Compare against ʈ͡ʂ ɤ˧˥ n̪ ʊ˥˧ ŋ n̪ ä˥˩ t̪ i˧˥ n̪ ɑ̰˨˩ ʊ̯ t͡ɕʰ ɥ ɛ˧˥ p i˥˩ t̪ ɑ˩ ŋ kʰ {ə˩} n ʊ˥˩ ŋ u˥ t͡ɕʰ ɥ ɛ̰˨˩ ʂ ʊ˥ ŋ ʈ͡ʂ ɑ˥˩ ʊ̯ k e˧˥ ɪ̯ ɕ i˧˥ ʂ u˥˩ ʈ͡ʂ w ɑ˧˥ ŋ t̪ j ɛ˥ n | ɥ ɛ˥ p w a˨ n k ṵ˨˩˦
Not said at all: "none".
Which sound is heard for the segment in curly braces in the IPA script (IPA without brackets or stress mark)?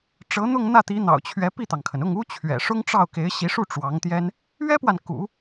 ə˩